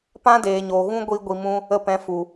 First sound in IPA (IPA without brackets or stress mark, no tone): p